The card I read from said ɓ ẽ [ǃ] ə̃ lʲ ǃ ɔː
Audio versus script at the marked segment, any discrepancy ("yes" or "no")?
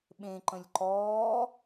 no